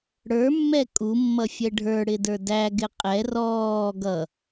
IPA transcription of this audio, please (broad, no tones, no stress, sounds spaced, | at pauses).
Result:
ɽ ə˞ mː ɛ kʼ u mː ʌ fʲ ɛ ɖʱ ə˞ ɽ ɪ d ə˞ d æ ɡ ɪ qʼ ɛ r ɔː ɡ ʌ